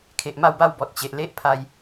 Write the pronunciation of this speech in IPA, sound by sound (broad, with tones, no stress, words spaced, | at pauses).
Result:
kʰe˨ʔma˥˧wba˥˧wbɔ˨t̚ t͡ɕe˨ʔ le˦ʔ pʰa˧j